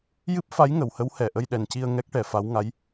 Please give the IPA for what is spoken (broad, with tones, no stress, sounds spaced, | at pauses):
j ɨ˦˥ p̚ f a˧˥ j ŋ ə˨˩˨ w h ə˧˥ w h ɛ˨˩ ʔ ə˧ j ɗ ɛ˨˩ n c i˧ ə̯ ŋ ɛ˦˥ k̚ ʈ ɛ˨˩˦ f a˧˥ w ŋ a˧˥ j